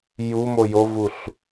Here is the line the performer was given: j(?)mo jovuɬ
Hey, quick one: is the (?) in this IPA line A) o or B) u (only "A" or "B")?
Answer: B